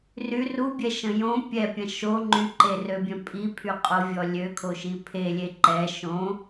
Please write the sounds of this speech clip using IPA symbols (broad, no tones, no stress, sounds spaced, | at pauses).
r y r u bʲ ɛ ʃ ə̃ j õ pʲ ɛ pʲ ɐ̃ ʃ o ŋ͡ǃ y ǃ e r ø bʲ œ̃ pʼ i pʰ y qʼ o vʲ ɔ lʲ ø kʰ o ʃ i pʰ e lʲ e ǃ ɛ ʃ õ